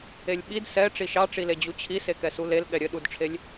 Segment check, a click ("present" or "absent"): absent